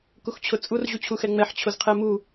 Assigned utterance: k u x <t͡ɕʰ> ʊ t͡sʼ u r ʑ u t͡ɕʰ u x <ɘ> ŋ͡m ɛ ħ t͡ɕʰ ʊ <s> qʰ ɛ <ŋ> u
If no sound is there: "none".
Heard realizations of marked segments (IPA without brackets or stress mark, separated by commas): t͡ɕʰ, ɛ, z, m